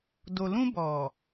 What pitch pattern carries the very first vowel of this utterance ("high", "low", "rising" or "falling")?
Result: low